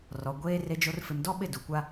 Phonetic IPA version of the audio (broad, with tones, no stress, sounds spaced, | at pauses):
r ɔ˨ ɡʷ eː˦ r e˦ d͡ʒ o˦ r f ɪ˨ m d ɔ˦ ɓ ɪ˦˨ d u˨ kʷ a˦